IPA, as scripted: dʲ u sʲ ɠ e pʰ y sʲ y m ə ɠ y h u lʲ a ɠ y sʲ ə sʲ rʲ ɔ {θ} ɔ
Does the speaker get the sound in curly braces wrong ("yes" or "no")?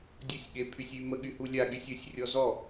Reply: yes